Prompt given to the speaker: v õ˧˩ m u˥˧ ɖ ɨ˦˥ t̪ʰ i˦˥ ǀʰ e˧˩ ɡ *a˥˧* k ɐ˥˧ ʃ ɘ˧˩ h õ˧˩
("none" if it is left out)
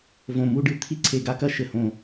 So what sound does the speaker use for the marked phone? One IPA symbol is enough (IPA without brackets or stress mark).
a˥˧